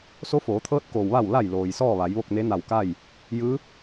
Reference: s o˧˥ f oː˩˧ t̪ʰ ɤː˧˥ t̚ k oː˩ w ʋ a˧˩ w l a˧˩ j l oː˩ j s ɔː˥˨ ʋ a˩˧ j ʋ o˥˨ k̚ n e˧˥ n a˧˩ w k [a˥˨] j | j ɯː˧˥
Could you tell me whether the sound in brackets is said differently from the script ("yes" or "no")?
no